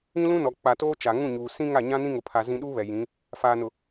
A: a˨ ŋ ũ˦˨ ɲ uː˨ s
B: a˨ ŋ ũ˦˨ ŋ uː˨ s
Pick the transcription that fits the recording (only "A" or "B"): A